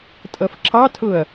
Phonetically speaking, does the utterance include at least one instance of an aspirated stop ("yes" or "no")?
yes